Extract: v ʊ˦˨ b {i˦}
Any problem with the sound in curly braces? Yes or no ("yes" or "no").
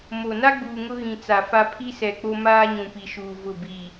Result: yes